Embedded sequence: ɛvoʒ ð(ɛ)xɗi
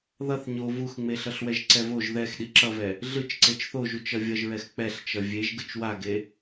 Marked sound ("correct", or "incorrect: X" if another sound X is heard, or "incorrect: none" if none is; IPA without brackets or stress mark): correct